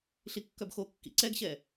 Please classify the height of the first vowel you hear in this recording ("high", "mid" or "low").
high